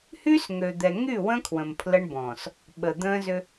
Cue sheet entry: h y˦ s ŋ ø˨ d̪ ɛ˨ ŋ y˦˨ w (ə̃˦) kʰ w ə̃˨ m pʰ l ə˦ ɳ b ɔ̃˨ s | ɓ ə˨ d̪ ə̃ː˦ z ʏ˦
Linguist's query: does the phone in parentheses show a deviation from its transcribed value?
no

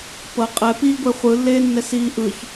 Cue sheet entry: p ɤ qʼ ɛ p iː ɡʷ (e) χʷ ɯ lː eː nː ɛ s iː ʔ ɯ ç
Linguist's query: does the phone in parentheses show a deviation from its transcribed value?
no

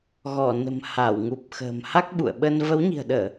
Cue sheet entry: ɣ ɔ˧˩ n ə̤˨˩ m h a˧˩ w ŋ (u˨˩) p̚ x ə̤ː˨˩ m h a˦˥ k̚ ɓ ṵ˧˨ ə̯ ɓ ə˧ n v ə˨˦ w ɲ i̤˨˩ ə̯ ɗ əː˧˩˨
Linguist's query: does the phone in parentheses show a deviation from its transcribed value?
no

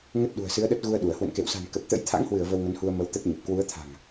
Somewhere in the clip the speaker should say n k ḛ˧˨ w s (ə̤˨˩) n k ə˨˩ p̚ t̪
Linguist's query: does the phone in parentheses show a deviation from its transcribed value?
yes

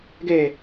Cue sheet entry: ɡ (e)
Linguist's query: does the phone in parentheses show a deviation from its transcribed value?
no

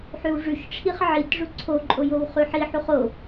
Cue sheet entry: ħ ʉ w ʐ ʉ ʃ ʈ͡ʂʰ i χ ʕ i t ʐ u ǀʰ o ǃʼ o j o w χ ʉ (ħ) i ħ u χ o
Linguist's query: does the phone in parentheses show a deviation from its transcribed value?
no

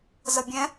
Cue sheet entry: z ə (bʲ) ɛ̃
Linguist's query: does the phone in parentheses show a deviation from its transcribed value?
no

